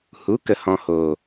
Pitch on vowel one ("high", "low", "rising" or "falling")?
rising